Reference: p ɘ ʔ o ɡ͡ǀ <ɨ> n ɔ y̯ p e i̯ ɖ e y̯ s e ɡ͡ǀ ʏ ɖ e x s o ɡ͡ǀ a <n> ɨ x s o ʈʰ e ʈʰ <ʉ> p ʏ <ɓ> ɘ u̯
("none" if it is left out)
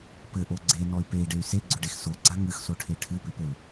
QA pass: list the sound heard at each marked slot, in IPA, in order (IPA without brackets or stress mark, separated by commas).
e, ŋ, ɨ, p